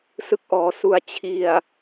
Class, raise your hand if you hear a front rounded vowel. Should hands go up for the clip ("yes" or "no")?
no